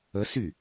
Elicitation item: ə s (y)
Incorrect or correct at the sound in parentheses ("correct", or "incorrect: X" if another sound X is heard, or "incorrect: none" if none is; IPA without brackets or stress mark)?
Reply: correct